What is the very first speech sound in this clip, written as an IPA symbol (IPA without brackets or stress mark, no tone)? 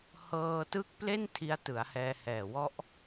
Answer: h